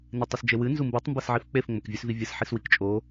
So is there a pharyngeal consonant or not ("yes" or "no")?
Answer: yes